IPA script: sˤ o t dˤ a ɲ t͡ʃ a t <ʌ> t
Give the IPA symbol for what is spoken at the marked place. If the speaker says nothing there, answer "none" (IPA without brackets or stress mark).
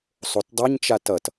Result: ʌ